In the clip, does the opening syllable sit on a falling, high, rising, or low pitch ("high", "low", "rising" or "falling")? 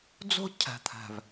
high